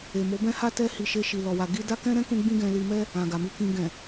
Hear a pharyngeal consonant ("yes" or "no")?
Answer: no